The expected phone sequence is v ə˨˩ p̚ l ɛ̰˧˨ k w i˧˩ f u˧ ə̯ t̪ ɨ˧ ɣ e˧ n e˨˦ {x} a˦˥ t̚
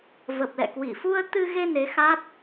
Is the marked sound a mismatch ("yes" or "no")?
no